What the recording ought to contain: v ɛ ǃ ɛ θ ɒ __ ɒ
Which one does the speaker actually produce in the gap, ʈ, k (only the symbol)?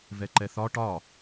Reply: ʈ